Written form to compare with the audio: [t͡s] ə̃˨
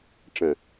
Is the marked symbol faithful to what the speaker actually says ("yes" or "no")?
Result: no